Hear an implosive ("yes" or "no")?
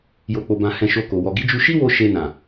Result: no